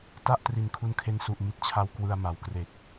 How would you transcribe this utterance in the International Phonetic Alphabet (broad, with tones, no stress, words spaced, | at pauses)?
ta˥˩ʔ tri˨˩nkʰu˧nkʰe˧n su˨˩ʔ mi˦˥t̚t͡ɕʰa˧w kwɯ˧a̯ma˩˦wkre˨˩k̚